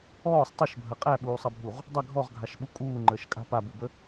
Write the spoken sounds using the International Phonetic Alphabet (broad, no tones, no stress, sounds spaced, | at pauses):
ɔː sˤ tˤ ə ʃ bʱ ɐ qʼ æ ɓ uː sˤ ɐ bʱ u ʁ | dˤ ɐ ɡʱ ɔ ʁ ɡʱ a ʃ ɓ u kʼ uː ŋ͡ǃ əː ʃ kʼ a̤ p a b u b ə